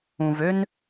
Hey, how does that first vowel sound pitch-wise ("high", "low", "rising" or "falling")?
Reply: low